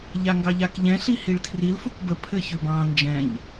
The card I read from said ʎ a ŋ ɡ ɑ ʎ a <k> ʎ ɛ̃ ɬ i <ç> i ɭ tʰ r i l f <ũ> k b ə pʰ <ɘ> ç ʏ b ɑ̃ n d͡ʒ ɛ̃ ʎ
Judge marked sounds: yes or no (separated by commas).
yes, no, no, yes